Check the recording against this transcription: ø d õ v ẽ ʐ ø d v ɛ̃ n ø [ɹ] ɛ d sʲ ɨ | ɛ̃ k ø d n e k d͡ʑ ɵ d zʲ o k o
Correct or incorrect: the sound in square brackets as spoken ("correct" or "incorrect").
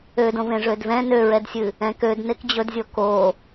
correct